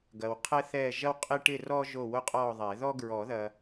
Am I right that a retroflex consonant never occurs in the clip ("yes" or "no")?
no